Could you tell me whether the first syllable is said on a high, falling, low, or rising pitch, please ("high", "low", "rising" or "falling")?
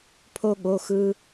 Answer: high